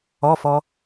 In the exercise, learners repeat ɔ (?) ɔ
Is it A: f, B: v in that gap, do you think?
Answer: A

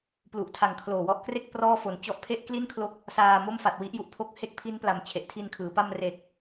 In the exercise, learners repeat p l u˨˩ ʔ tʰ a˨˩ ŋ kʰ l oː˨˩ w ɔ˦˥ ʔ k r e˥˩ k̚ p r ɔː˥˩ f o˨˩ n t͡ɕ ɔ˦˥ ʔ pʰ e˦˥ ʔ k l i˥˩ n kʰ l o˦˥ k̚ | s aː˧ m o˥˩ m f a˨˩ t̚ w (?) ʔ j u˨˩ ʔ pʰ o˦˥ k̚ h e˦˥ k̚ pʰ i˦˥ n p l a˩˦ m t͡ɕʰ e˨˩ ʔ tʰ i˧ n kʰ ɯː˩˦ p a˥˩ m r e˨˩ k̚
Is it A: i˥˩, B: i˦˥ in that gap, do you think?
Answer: B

